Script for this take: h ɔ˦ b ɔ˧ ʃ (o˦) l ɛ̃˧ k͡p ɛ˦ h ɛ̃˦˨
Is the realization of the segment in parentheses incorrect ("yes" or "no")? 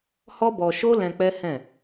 no